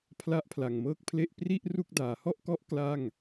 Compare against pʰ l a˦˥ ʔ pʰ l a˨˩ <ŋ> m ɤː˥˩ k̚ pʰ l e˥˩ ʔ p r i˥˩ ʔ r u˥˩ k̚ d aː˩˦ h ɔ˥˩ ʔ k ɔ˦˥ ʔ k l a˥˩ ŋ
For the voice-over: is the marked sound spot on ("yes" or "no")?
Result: yes